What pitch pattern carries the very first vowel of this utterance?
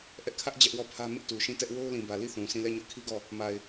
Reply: high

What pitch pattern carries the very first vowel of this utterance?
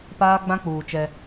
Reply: high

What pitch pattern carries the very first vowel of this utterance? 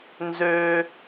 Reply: high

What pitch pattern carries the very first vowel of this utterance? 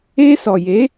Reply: high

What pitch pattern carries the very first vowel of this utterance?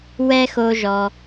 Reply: high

